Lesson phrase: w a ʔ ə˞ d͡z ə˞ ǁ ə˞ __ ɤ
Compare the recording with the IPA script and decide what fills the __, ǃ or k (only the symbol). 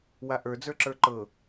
ǃ